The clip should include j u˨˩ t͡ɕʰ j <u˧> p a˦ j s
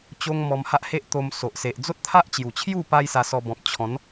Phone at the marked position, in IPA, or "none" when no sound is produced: u˥˧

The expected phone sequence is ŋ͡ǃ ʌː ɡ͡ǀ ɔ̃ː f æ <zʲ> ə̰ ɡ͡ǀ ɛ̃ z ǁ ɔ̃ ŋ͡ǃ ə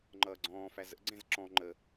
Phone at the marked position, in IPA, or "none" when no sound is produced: z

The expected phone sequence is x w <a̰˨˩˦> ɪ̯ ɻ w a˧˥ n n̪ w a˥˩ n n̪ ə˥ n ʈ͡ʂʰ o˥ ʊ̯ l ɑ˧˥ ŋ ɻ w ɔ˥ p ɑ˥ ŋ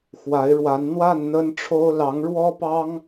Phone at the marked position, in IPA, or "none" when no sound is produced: a˧˥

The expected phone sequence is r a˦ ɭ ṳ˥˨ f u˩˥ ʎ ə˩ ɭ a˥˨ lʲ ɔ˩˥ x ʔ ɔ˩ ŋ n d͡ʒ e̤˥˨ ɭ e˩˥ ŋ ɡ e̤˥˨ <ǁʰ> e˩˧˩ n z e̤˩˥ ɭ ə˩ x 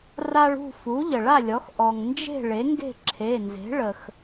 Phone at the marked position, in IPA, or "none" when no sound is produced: ǁʰ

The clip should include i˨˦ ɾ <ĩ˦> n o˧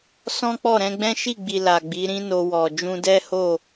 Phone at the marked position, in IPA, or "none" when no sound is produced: ĩ˦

